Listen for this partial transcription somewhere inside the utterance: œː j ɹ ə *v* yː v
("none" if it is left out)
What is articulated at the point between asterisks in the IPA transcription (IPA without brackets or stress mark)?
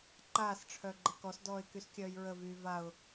v